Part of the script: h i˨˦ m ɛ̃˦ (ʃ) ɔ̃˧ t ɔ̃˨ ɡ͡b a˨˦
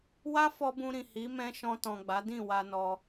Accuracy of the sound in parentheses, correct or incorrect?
correct